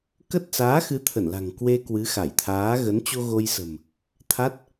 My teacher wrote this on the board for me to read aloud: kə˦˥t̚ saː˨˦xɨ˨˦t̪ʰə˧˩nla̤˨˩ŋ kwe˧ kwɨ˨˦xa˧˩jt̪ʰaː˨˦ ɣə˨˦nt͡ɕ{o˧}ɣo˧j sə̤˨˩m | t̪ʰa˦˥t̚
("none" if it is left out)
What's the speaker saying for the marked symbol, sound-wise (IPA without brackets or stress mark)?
o˧